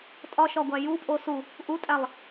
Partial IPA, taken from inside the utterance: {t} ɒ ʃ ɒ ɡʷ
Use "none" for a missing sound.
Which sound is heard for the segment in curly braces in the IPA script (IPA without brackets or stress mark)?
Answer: tʼ